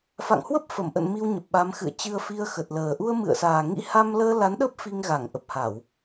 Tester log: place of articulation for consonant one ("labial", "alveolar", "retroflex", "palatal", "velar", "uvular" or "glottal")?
labial